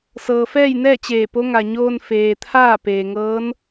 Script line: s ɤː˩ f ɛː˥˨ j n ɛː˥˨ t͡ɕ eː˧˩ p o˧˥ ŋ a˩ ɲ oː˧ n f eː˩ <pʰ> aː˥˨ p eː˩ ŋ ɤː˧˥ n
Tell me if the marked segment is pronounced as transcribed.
no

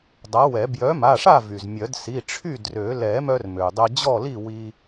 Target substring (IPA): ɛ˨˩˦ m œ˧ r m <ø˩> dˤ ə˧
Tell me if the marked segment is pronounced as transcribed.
yes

